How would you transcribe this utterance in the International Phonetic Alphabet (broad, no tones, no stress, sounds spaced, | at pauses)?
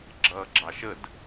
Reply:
ɡ͡ǁ ʌː ɡ͡ǁ ɑ ʃ ə d